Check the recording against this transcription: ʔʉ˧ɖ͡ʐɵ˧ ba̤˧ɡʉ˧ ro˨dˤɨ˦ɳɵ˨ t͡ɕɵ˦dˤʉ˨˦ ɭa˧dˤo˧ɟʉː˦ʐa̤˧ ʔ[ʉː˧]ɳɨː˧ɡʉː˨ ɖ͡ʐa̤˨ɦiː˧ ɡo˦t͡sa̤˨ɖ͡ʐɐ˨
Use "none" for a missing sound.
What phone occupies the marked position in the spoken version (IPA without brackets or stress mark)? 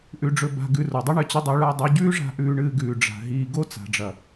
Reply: ʉː˧